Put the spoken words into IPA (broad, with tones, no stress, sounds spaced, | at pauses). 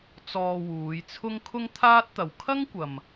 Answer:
t͡s ɔː˧ w uː˨˧ j t͡sʰ ʊ˥ ŋ kʰ ʊ˥ ŋ t̪ʰ aː˥ t̚ t̪ ɐ˨˧ w kʰ ɐ˥ ŋ kʷ ɐ˨ m